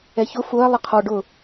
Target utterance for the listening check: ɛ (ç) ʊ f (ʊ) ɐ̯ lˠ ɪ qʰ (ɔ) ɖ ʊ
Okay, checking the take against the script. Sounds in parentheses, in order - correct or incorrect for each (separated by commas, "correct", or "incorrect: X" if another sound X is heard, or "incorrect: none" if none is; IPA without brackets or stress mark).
correct, correct, correct